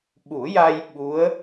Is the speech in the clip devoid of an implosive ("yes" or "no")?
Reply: no